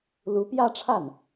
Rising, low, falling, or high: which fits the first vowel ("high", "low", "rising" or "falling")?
rising